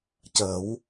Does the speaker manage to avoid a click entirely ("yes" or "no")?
yes